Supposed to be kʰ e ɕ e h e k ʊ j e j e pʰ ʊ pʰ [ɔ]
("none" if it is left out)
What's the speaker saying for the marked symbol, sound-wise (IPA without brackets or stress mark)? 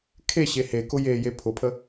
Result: ə